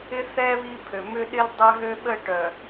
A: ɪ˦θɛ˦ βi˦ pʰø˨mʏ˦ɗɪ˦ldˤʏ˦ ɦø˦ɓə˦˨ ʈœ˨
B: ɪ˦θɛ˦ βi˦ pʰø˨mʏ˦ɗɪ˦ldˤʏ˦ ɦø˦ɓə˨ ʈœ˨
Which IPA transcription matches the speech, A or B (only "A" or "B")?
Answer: A